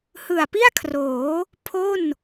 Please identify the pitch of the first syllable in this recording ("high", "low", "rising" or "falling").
low